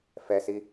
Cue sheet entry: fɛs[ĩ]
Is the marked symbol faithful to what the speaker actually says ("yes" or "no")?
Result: no